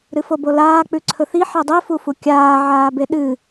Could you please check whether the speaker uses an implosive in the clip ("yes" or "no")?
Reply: yes